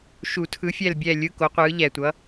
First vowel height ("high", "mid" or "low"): high